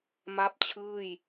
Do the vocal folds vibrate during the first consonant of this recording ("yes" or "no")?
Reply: yes